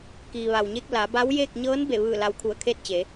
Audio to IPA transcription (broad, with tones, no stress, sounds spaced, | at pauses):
k iː˩ ʋ a˩ w ɲ e˧ k̚ l a˩˧ b a˧˥ w j eː˥˨ k̚ ɲ ɤː˧˥ n b e˧˩ ʋ ɯː˧˩ l a˧˥ w kʰ u˧˩ ə̯ kʰ eː˥˨ t̚ t͡ɕ eː˩˧